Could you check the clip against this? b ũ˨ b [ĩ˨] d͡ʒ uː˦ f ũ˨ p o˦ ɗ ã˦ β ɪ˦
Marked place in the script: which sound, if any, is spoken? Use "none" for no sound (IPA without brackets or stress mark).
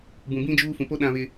ĩ˦